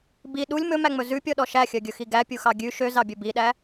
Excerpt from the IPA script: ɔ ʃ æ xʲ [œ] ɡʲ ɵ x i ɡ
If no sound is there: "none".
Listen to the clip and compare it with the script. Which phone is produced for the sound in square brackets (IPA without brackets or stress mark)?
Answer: œ